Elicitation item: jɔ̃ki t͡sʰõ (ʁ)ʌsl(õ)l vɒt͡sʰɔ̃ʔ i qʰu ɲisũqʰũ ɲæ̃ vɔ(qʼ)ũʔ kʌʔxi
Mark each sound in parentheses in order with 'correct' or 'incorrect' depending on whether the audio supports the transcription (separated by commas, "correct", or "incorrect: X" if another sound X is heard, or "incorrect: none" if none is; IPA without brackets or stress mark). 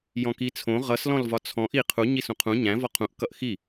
correct, incorrect: ɔ̃, incorrect: qʰ